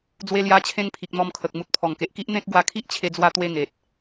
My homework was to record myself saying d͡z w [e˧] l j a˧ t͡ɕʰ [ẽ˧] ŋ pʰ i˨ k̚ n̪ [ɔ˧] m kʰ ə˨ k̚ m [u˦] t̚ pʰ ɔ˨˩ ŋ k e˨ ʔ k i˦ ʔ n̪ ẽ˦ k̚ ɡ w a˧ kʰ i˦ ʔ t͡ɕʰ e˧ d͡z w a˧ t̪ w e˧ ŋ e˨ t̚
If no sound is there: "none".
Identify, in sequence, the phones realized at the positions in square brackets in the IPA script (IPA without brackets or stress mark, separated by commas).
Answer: e˧, ẽ˧, ɔ˧, u˨